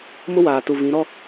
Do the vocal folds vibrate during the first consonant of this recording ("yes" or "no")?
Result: yes